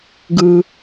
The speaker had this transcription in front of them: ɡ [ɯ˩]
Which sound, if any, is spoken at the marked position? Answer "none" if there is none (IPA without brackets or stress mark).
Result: ɯ˩